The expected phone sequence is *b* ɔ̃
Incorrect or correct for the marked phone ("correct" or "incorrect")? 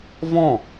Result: incorrect